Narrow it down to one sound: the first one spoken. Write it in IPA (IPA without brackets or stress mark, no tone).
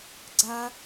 ɡ͡ǀ